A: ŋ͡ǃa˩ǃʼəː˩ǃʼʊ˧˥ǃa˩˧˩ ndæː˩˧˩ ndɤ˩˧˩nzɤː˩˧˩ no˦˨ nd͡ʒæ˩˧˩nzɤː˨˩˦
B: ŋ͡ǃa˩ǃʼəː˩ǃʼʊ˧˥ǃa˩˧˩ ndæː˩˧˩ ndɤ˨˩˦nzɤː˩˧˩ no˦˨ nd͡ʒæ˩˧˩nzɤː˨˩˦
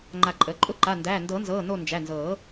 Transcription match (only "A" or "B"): B